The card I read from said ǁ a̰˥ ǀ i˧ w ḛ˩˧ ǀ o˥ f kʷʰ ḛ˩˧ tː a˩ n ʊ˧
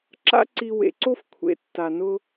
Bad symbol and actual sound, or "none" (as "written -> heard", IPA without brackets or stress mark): none